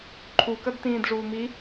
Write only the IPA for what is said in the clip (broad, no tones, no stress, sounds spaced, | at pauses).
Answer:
ǃʰ u k ɐ d t ĩː d ʐ uː m i